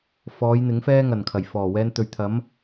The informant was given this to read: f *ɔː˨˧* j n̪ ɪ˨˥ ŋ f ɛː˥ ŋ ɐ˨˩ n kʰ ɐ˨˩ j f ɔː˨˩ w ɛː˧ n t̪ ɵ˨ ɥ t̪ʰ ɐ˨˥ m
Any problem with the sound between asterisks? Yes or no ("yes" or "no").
no